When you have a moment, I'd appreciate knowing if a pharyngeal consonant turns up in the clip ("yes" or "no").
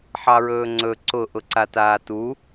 yes